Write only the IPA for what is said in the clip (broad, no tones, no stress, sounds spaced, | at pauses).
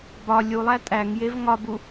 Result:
b ɒ lʲ u lˠ æ tʼ æ ŋ j e v ŋ ɒ b u